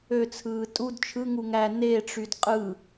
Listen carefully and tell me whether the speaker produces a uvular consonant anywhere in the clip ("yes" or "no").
yes